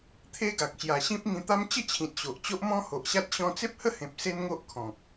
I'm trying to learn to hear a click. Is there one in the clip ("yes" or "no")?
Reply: no